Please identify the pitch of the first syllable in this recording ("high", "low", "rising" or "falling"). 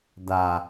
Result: low